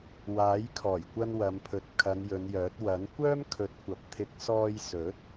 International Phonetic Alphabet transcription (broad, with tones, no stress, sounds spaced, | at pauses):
w aː˨˥ j kʰ ɔː˨˩ j kʷ ɐ˧ n w ɐ˨˧ m pʰ ɵ˨˥ t̚ kʰ ɐ˨˧ n j ɵ˨˧ n j œː˨˥ t̚ w ɐ˨˥ n kʷ œː˥ m kʰ ɵ˨˥ t̚ kʷ ɐ˨ p̚ t̪ʰ ɪ˧ k̚ s ɔː˧ j s ɵ˨˥ t̚